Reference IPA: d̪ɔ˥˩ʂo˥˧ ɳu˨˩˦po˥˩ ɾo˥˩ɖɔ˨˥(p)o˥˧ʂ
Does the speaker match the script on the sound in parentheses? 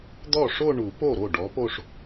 yes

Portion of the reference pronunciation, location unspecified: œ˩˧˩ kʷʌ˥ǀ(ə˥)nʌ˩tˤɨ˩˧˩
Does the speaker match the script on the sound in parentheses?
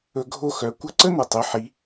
yes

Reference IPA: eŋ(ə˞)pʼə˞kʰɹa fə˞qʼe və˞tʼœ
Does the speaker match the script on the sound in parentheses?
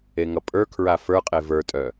no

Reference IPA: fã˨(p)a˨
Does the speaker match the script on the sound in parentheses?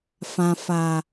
no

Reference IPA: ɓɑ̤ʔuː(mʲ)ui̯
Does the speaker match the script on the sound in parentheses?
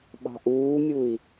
yes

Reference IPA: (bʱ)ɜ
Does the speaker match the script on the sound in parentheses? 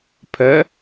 no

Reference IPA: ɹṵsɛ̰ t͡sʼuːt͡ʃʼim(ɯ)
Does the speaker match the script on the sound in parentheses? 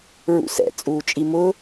no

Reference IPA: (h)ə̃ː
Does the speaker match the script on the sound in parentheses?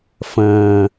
no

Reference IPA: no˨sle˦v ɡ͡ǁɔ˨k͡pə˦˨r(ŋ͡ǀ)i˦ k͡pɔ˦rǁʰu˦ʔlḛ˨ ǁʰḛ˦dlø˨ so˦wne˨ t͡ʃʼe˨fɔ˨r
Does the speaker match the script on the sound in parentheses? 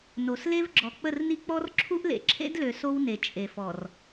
no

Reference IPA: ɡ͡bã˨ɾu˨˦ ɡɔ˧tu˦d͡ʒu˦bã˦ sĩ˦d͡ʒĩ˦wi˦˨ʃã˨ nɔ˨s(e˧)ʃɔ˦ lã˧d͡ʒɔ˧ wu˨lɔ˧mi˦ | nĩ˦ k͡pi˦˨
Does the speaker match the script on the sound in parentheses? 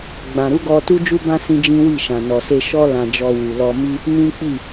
yes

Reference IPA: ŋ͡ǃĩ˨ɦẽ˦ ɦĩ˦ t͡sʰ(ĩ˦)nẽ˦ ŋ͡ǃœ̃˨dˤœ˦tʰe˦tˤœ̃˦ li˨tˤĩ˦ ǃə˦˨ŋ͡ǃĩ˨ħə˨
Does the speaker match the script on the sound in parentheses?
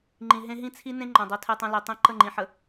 no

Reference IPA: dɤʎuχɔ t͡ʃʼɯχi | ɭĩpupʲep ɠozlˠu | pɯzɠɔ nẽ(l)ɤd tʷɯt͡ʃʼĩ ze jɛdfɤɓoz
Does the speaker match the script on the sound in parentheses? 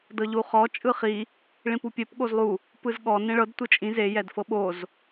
no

